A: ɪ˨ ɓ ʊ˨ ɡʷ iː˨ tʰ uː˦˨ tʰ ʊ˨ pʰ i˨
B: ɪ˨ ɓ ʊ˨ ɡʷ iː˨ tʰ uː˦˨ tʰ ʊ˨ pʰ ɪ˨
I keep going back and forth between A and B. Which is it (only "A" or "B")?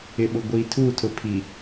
A